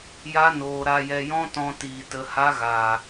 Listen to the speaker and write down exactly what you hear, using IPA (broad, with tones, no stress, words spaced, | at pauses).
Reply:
ja˦noː˧ ɾa˧jɛ˧jɔ̃˦ tɔ̃˧tiː˨ tə˧ha˦ɣaː˨